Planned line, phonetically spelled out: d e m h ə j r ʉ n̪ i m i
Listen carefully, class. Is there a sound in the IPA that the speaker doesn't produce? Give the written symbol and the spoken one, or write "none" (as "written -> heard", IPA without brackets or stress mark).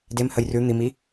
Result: none